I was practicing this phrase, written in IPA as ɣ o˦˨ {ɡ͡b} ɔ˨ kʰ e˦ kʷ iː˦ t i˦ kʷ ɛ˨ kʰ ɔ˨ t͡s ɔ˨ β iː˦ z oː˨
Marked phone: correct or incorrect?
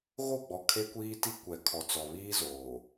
correct